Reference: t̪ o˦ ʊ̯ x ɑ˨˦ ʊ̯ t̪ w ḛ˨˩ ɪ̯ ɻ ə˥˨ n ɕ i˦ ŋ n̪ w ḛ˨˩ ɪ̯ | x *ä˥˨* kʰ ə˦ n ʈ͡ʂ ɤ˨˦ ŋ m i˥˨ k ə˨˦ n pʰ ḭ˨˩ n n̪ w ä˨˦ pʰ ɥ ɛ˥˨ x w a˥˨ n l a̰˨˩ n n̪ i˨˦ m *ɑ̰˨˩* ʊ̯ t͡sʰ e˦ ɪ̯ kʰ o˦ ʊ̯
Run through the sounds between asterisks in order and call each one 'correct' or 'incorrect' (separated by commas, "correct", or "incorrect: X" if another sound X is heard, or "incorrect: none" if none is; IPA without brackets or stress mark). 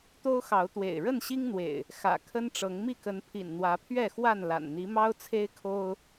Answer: incorrect: ä̰˨˩, incorrect: ɑ˦